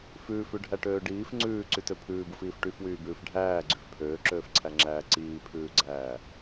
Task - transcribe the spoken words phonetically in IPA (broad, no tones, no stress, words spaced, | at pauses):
fʉːfʉɖʱæʈøː ɖiːf ŋ͡ǀʉːǀytø pʰʉːbufiːf ʈyfwyːbʉːf ɖʱæːɡ͡ǀyf pʰøːǁøːfǀʰæŋ͡ǁæː ǀiːpʰʉːɡ͡ǀæː